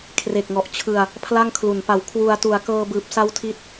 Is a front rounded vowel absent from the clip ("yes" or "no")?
yes